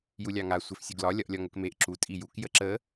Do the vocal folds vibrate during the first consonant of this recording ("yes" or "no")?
yes